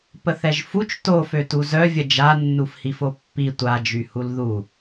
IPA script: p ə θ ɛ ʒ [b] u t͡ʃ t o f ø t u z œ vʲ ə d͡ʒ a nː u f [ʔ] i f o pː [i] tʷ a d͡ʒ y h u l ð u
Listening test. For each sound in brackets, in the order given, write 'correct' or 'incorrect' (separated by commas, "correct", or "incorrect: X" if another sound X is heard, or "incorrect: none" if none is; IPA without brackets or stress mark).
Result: incorrect: f, incorrect: h, correct